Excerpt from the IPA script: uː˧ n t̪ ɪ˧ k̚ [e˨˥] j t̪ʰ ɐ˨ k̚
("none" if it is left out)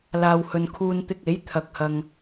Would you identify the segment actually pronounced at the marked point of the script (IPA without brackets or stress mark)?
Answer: e˨˥